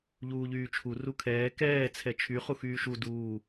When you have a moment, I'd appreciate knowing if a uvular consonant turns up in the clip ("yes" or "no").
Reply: yes